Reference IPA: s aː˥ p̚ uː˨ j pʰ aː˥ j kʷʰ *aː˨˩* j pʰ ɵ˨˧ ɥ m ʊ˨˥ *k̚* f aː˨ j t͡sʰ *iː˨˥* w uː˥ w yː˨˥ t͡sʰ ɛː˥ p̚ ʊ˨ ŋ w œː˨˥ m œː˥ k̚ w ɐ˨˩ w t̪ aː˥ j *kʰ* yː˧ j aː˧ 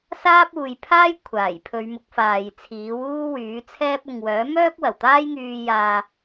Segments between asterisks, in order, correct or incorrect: correct, correct, correct, incorrect

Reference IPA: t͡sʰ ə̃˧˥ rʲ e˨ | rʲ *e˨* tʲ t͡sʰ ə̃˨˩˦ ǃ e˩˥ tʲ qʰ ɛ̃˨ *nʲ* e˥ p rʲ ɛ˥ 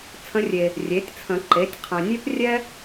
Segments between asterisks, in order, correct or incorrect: incorrect, correct

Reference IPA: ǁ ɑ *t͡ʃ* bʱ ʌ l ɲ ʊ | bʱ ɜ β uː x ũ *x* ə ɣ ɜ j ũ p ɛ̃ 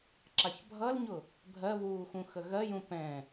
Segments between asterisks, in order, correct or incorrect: incorrect, correct

